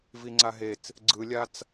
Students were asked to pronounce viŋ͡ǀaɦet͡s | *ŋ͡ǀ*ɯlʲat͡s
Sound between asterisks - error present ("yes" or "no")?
yes